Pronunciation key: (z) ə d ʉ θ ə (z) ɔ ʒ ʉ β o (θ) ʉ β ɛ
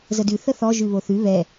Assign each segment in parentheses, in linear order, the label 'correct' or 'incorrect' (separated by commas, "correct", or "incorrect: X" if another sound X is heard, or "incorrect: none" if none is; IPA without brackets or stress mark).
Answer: correct, incorrect: θ, correct